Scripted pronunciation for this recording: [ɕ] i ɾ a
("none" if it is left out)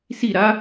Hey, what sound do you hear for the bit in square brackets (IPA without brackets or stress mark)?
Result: s